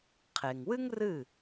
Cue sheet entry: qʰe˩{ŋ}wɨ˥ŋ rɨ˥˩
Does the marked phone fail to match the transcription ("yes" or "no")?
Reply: no